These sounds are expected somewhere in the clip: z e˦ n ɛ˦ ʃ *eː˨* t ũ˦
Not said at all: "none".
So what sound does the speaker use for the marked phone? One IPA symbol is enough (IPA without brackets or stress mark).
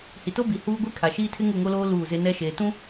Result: eː˨